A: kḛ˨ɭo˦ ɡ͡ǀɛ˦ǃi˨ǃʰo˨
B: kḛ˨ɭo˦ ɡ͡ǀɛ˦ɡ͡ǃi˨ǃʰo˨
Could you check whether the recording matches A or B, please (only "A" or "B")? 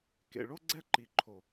A